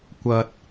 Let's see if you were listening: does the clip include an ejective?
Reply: no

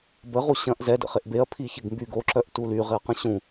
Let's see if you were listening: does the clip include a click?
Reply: yes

